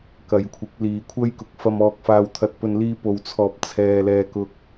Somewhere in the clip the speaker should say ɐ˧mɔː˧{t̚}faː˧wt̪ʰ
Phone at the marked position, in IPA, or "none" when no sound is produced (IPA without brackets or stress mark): k̚